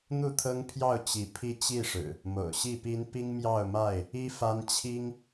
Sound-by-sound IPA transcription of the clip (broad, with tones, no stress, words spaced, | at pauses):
n̪u˥˨t̪ʰɤ˦ŋpʰjɑ˥˨ʊ̯ t͡ɕi˨˦pʰi˦ t͡ɕi˥˨ʂɻ̩˨˩ | mo̰˨˩ʊ̯ɕi˥˨pi˦n pi˦ŋmjɑ˥˨ʊ̯ma˥˨ɪ̯ | i˦fa˦n t͡ɕʰi˦ŋ